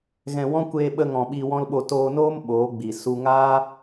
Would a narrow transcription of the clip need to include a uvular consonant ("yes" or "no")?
no